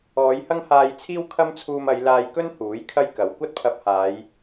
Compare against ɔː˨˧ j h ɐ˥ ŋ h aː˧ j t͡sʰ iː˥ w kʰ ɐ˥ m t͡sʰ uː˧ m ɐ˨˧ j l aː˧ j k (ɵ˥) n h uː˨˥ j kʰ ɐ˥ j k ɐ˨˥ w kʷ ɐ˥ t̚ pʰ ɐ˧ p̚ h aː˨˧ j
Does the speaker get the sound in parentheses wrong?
no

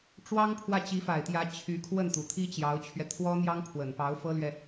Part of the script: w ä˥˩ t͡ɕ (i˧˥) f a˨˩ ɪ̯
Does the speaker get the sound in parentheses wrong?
no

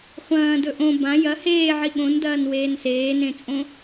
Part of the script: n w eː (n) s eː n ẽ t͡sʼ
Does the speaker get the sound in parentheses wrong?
no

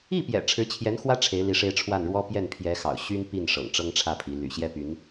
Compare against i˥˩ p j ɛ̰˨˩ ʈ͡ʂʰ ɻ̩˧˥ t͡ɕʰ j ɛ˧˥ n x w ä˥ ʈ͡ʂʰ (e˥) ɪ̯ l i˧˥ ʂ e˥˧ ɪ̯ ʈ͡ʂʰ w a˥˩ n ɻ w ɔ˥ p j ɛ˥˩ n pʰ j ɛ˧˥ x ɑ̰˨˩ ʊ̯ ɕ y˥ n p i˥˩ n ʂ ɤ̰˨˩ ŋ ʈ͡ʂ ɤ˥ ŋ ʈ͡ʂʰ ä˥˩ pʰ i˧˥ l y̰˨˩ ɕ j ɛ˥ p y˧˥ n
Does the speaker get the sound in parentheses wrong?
yes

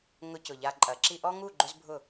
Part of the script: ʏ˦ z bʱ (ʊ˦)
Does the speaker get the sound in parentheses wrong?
yes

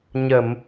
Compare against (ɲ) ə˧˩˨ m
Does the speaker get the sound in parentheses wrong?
no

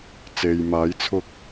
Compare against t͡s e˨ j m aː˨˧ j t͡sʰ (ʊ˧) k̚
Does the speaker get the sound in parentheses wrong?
no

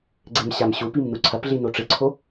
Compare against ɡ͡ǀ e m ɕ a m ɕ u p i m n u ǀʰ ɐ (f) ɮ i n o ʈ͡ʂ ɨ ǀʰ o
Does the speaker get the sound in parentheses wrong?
yes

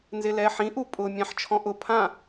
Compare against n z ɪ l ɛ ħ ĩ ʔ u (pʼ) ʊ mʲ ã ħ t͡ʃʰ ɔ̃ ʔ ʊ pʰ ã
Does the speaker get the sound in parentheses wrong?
no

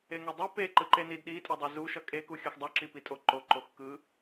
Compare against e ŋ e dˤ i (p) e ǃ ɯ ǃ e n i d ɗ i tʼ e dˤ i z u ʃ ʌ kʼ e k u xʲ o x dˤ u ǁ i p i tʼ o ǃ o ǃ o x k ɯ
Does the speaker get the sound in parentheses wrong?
no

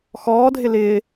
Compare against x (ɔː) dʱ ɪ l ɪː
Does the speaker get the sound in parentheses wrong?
no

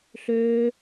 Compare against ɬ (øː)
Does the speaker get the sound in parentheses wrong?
no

